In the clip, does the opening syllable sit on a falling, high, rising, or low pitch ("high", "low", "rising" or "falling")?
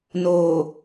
low